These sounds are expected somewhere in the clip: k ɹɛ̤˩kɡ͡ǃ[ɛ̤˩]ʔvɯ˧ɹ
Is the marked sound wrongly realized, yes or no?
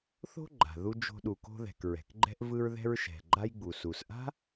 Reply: yes